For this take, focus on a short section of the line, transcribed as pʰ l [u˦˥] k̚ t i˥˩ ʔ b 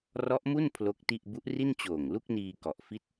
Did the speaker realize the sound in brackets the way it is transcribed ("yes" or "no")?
no